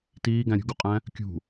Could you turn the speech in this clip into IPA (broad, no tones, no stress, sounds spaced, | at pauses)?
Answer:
t iː ɡ æ̃ ɾʲ ṳ ɡ u qʼ æ̃ | kʲ ṳ